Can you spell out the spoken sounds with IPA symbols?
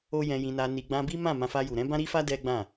o˦ j ɛ̃˧ j ĩ˧ n a˧ n i˧ ɡ͡b ã˧ b i˦ m ã˦˨ m ã˧ f a˧ j u˨ ɾ ɛ̃˨˦ b ã˦ ɾ i˦ f a˦ d ɛ˦ ɡ͡b ã˦˨

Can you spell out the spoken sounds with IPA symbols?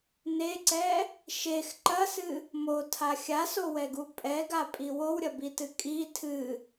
n e ǀ ɛ | ʃ e x ǃ ɐ s ɨ | m o tʰ a xʲ a s o w ɛ ɡ u pʼ ɛ ɡ a pʼ i w o w ɾʲ ɐ b i t ɨ kʼ i tʰ ɨ

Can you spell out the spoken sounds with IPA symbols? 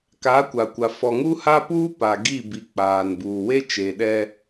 k aː˨˦ kʷ a˨ kʷ a˨ f ɔ˨ ŋ u˦ h a˦ p uː˦ p a˨ ɡ i˦˨ b i˨ k͡p aː˨ n b uː˨ w e˦ t͡ʃ e˨ ɗ ɛ˦

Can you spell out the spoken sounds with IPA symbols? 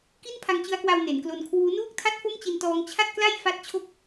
k i˥˩ n pʰ a˧ ŋ t͡ɕ ɯ˦˥ a̯ k w a˧ w n e˩˦ n k l o˧ n kʰ w uː˦˥ n uː˥˩ k̚ tʰ a˥˩ t̚ f o˥˩ m t͡ɕ i˧ n t ɔː˦˥ ŋ t͡ɕʰ a˥˩ t̚ k l a˥˩ j f a˥˩ t̚ t͡ɕʰ o˥˩ k̚

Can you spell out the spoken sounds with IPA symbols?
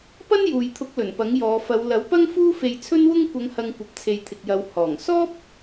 p ɐ˥ n j uː˨ j t̪ʰ ʊ˨˥ k̚ l ɵ˨˩ n p ɐ˨˥ ŋ j ɔː˨˧ f ɐ˨˧ w l ɐ˨˥ w p ɐ˥ ŋ f uː˥ f e˧ j t͡sʰ ɵ˥ n w ʊ˥ ŋ kʷ ɐ˨˧ ŋ h ɐ˨ ŋ kʷ ɐ˨ p̚ t͡sʰ e˨ j t̪ʰ ɪ˨ k̚ j ɐ˨˧ w h ɔː˨˩ ŋ s ɔː˥ p̚

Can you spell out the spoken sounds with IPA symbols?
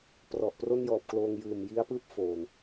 p r ɔ˨˩ ʔ p r o˥˩ n j ɔː˨˩ p̚ k l oː˧ ŋ j ɯː˨˩ m j i˦˥ a̯ p ɯː˥˩ p̚ f oː˨˩ n

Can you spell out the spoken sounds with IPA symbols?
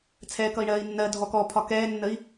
t͡sʰ ɛː k ʌ i̯ ɳ ɜː i̯ nː ɜ dʱ ɔ k ɔ pʰ ɒ k ɛː nː ə i̯

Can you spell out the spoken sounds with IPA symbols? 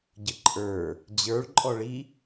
ɟ ə ǃʼ ə˞ | d͡ʑ ə˞ ɭ ǃʼ ɔ ɭ i

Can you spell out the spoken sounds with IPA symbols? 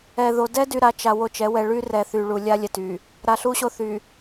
ɛ˨ ð o˨ d ɛ˦ d y˨ ɾ a˨ t͡ʃ a˨ w o˦ t͡ʃ ɛ˨˦ w ɛ˨ ɭ y˦ r ɛ˨ θ y˨ ɭ u˨ lʲ a˦ lʲ ɛ˨ t y˨ | ɾ a˨ ɬ u˦ ɕ o˦ θ y˨

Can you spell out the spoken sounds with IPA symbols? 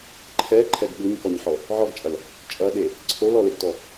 ǃʰ ɛ ǃʰ ɛ ɡ ɠ u ɲ k ɔ ɲ ħ ɔ | ʕ ɔ ɡ t͡ʃʼ ɐ l | t͡ʃʼ ɐ ɗ e | ǀʰ o l ɔ l e ɡ t ɔ

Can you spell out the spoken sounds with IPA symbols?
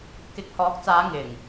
k ɪ˨ k̚ h ɔː˨˥ k̚ t͡s aː˨˧ ŋ ɪ˨˩ ŋ

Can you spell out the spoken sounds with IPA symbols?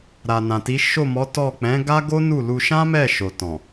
ɾ a˨ n ã˨ t i˨˦ ʃ o˦˨ m ɔ˨˦ t ɔ˦˨ k͡p ɛ̃˨˦ ɡ a˦ ɡ o˦ n u˦˨ l u˧ ʃ ã˦ m ɛ˦˨ ʃ o˨ t ɔ̃˨

